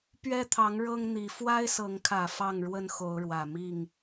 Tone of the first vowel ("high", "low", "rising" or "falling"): high